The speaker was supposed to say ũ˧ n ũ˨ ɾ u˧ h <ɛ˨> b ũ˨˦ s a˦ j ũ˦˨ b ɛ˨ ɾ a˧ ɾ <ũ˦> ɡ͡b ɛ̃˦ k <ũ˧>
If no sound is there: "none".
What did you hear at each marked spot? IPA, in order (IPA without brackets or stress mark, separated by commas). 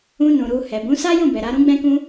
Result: ɛ˨, ũ˦, ũ˦